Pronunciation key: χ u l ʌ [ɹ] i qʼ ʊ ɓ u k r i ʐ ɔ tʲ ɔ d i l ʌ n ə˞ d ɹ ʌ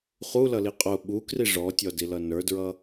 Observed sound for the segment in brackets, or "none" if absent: l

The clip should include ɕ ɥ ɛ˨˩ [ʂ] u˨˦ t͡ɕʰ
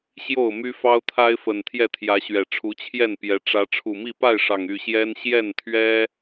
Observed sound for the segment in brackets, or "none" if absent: ʈ͡ʂʰ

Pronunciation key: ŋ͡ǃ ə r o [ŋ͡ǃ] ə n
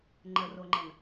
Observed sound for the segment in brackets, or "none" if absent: ŋ͡ǃ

